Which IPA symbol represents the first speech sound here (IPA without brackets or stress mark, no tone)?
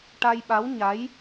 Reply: ʈ